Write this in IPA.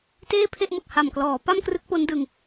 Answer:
t eː˥˩ pʰ e˥˩ ʔ m ɯ˨˩ k̚ h a˨˩ m k l ɔː˩˦ p a˥˩ m k r ɯ˦˥ k̚ p o˦˥ n d ɯ˧ ŋ

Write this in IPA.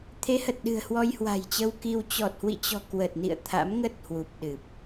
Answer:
t̪ʰ e˨˦ h ə˨˩ t̚ ɗ ɨ̤˨˩ ə̯ h w ɔ˧ j h w a̤˨˩ j t͡ɕ ə˧ w k i˧ w t͡ɕ ɔ˨˩ t̚ h w ḭ˧˨ t͡ɕ ɔ̤˨˩ k w ə˨˩ t̚ n ḭ˧˨ ə̯ t̪ʰ a̰˧˥ m ŋ ə˦˥ t̚ h w u˨˩ p̚ ɗ ɨ˨˩ p̚

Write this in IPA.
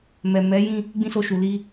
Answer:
m ɛ˨ m ɛ˨˦ j ĩ˦˨ | ɡ͡b ĩ˦ s o˧ ʃ u˨ l i˧

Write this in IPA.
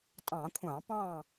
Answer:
tʼ ɑ̃˧˩˧ kʷʰ ɑ̃˧˩˧ p ɑ̃˥˨

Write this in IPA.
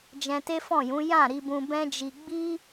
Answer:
d͡ʒ ɛ̃˧ t e˦ f ɔ̃˦˨ j ũ˨˦ j ã˦˨ ɾ i˧ b ũ˧ b ɛ̃˦ d͡ʒ i˧ ɡ͡b i˦

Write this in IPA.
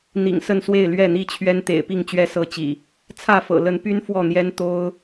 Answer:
n̪ ḭ˨˩ ŋ s ə˥˨ n s w e˥˨ ɪ̯ l ɥ ɛ˥˨ n̪ i˥˨ t͡ɕʰ ɥ ɛ˦ n t̪ ḛ˨˩ ɪ̯ p i˥˨ ŋ t͡ɕ ɥ ɛ˦ s ɤ˥˨ t͡ɕ ḭ˨˩ | t͡sʰ ä˥˨ f ɤ̰˨˩ l ə˨˦ n p y˦ n f w ɔ˥˨ n̪ j ɛ˦ n t̪ o˦ ʊ̯

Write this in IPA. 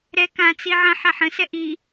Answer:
ɾ ɛ k ã t͡s i ʕ ɐ̃ ħ a ħ ə̃ s ɛ ʔ i

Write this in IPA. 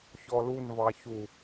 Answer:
ç ɔ l u n v ɑ ç u

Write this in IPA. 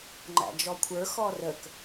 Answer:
ŋ͡ǃ æ̰ d͡ʒ ɔ kʷʰ ə˞ x ɔ r ə k

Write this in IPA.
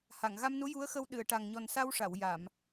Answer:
h a˨˩˨ ŋ ɣ a˧ m n u˧˥ j u˧˥ ə̯ x ə˧ w ɗ ɨ˨˩˨ ə̯ ʈ a˨˩ ŋ ɲ ɔ˨˩ n s a˧ w ʂ a˨˩˨ w j a˨˩˨ m

